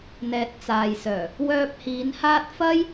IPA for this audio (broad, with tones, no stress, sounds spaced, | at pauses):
n̪ ɛː˨ t̚ t͡s aː˨ j s œː˨˩ | w œː˧ p̚ h iː˨˧ n h aː˥ t̚ f ɐ˥ j